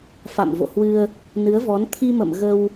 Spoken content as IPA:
f a̰˧˨ m v o̰˧˨ h w ɨ˧ ə̯ | n ɨ˨˦ ə̯ v ɔ˨˦ n t̪ʰ i˧ m ə̰˧˨ m ɣ ə˧ w

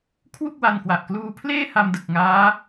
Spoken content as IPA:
kʰ w u˥˩ k̚ w a˧ n k w a˨˩ ʔ k l uː˧ pʰ l eː˥˩ h a˧ m d ɯ˨˩ k̚ ŋ aː˦˥

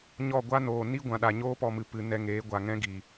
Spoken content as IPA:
ɲ ɔ˦˨ ɡʷ a˦ n oː˨ n i˦ ɡʷ ã˨ ɗ a˨ ɲ oː˦ p ɔ˧ m ɨ˨ p ɨ˨ n ɛ˧ ŋ eː˨˦ ɡʷ a˨ ŋ ɛ̃˦ ɡ i˨

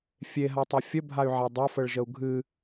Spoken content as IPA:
fʲ e ɦ a tˤ ɛ fʲ ə bʱ a y̯ ʕ a dˤ a f ə ɭ ʒ ə u̯ ɡʱ ɨ

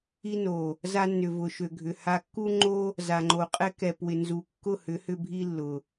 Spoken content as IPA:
i˧ n o˨ | z a˦ nː ʏ˨ v ʊ˨ ʃ ø˨ ɡʱ ʏ˨ h a˧ kː u˦ ŋ͡ǃ o˦ | z a˨ ŋ͡ǃ o˨ qʼ ɛ˦ k ɛ˨ p w ɪ˨ n z u˨ kː ʊ˦˨ h ʏ˨˦ h ʏ˧ bʱ i˦ lː ʊ˨

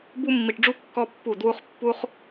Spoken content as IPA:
b u˦ mː i˧ ʈ ɖ͡ʐ u˦ kː ɔ˦ pː u˦˨ d w u˦ χ pː u˦ χ

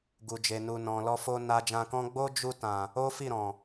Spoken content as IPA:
ɡ u˨ d͡ʒ e˨ n u˨ n ɔ̃˨ l ɔ˧ f o˧ n a˧ d͡ʒ ã˧ k ɔ̃˦ ɡ͡b o˦ d͡ʒ u˧ t ã˨ | o˦ f i˦˨ ɾ ɔ̃˨

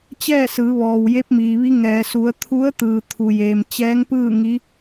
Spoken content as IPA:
t͡ɕ ɛː˥˨ s ɯː˩˧ ʋ ɔː˩ w j e˧˥ p̚ m iː˩ ʋ i˧˥ ŋ ɛː˩ s u˩˧ ə̯ t̪ʰ u˧˥ ə̯ t̪ ɯː˩ t̪ʰ u˩ j eː˩ m t͡ɕ ɛː˧˥ ŋ p ɯː˥˨ ŋ i˧˥

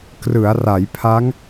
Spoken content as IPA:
k r ɯ˩˦ a̯ r a˩˦ j pʰ a˦˥ ŋ

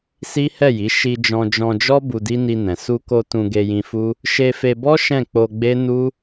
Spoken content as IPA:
s i˦ h ɛ˦˨ j i˨˦ ʃ i˧ d͡ʒ ɔ̃˧ d͡ʒ ɔ̃˧ d͡ʒ ɔ˦ b u˧ d i˦ n i˧ n ɛ̃˨ s u˧ k o˧ t ũ˧ ɡ e˧ j ĩ˧ f u˦ | ʃ e˧ f e˧ b ɔ˦ ʃ ɛ̃˦˨ k͡p o˧ ɡ͡b e˦ n u˦

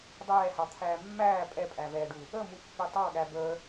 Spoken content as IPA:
dˤ ɛː h ɑ t̪ʰ æː mː æː pʼ ɛ pʼ æ v ɛː ɖ u | ə m u pː i tˤ ɑ ɠ æ b əː

